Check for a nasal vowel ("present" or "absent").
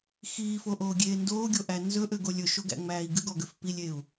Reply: absent